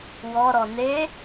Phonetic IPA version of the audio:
w ɔ ɾ ɔ n e

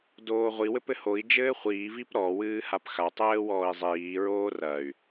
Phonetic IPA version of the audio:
d oː ʁʷ i w ɘ p ɘ h o i̯ d͡ʒ ɘː χʷ iː v i p ɾ ɔ w ɨː h a p x a tˤ ɘː w ɔː i̯ zˤ iː ɹ oː r ɐ y̯

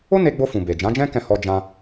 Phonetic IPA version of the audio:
o˦ n e˧ ɡ͡b o˧ f ũ˨ b e˨ d͡ʒ ã˨˦ d͡ʒ ɛ̃˦ k ɛ̃˦˨ h ɔ˧ d͡ʒ ã˧

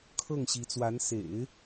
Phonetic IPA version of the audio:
kʰ ɤ˥˩ ŋ ɕ i˧˥ t͡s w a˧˥ n s ḛ˨˩˦ ɪ̯

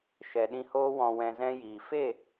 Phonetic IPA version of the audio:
ʃ ɛ˨ ɗ ĩ˧ h oː˦ w ɔ̃˧ w ɛ̃˧ z ɛ̃˦ j iː˨ f e˦˨

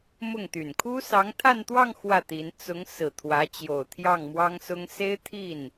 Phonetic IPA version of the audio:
m ʊ˥˩ ŋ t̪ y˨˩ n kʰ u˥ s ɑ˧˥ ŋ t̪ʰ a˥˧ n t̪ w ɑ˥˧ ŋ x w ä˥˩ t̪ i˧˥ n t͡s ʊ˧˥ ŋ s ɹ̩˨˩ t̪ʰ w ä˧˥ t͡ɕ j o˨˩ ʊ̯ t̪ʰ j ɑ˥˩ ŋ m w ɑ˥ ŋ s ʊ˥ ŋ s e˥ ɪ̯ t̪ʰ i˥˩ n

